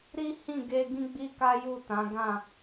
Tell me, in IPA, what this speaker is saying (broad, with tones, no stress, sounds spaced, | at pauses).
ɾ i˦ h ĩ˦˨ ɡ e˧ ɡ ĩ˦ ɡ͡b i˦ k a˦ j u˦˨ t ã˨˦ ɡ ã˦˨